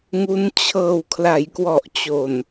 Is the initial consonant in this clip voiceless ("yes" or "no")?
no